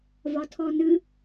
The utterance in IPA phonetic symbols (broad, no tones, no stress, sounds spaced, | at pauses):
v ɒ tʰ ɔ n ɨ